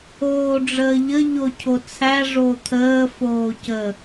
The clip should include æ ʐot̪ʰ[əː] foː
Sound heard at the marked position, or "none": əː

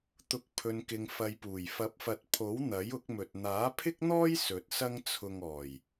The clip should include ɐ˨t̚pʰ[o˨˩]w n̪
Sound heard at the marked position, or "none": o˨˥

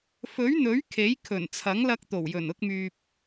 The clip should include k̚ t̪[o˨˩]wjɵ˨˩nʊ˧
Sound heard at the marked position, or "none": o˨˩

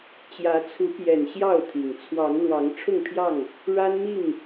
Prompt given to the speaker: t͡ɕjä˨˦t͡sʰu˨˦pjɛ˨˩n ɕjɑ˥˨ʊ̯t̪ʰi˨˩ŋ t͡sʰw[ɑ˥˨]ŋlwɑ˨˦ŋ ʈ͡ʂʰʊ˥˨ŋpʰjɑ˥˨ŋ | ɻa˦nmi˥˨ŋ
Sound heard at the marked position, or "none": ɑ˨˦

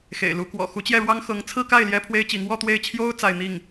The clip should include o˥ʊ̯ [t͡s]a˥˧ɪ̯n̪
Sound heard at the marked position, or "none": t͡s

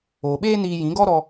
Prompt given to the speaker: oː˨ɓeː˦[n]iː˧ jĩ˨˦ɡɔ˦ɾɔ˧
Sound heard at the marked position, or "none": n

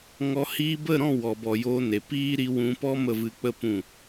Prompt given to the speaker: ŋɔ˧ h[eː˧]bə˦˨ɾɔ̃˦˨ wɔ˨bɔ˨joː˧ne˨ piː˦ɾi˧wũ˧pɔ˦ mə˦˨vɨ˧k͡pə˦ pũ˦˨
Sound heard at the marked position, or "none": iː˧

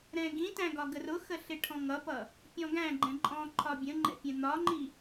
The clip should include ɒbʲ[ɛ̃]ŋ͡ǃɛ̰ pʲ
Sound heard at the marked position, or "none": ə̃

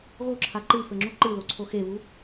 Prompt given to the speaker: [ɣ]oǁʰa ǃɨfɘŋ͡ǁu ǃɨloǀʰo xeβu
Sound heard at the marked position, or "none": ɣ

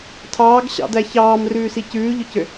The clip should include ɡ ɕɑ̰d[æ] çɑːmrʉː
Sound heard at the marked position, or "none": æ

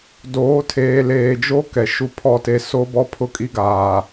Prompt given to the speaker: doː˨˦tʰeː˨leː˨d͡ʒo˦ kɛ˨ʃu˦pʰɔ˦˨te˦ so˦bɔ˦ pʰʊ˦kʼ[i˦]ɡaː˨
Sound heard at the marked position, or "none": i˦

